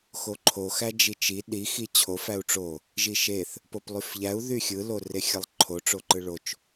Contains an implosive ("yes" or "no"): yes